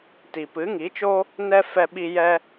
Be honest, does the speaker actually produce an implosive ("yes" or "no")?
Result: yes